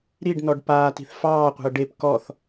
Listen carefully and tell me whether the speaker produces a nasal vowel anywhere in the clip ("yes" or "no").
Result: no